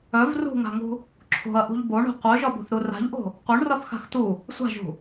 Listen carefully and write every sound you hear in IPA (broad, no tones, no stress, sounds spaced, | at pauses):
œ v r ṳ ŋ a̤ ŋ ṳ | ǁʰ o̤ ɐ̯ ʔ ṳ ʎ b o ɳ o̤ qʷ œ ʒ ɒ b o̤ θ ɾ u r a̤ ʎ ʔ o̤ | qʷ œ ɳ r ɒ θ x a̤ x t u | sʷ a̤ ʒ ṳ